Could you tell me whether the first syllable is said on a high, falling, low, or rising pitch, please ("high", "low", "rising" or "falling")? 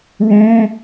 high